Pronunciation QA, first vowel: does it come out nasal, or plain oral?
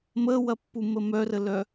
oral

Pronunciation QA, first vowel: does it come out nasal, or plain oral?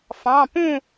nasal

